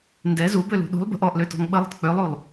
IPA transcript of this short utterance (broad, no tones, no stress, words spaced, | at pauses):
ndɛ zubølṳ ɗṳlˠ bə̤ʔ ɔʔløtɔ̤ŋ ɓəlˠə̤t k͡pølˠulˠ